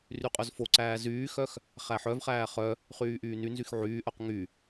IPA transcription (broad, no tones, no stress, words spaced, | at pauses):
ryqʼœzfoǀæː zyːxœx | χæħœvχæː χœ | χyːʔyːnynzyx ʕyːʔœq ŋy